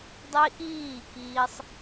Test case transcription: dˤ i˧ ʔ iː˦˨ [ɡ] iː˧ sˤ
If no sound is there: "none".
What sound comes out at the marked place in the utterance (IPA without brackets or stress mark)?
k